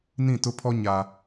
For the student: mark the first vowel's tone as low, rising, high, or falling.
falling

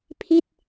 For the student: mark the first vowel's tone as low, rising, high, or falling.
falling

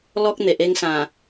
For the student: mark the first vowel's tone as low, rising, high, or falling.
high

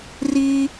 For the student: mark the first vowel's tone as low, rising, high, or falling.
high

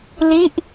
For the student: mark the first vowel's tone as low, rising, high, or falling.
falling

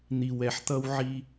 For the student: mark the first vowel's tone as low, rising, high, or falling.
low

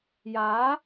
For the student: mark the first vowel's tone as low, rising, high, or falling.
rising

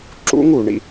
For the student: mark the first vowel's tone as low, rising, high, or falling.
high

